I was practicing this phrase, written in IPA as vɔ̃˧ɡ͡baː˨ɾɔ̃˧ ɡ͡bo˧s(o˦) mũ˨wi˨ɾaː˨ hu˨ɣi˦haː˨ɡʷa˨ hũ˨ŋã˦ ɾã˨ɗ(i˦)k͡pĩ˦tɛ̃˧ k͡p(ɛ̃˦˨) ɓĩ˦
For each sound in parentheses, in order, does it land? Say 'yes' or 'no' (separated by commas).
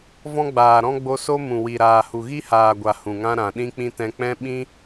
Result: yes, no, no